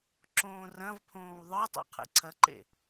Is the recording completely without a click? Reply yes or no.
no